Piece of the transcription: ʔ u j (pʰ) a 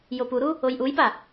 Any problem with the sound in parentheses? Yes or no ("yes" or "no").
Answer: yes